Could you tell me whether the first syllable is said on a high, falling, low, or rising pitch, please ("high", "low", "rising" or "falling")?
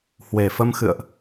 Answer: low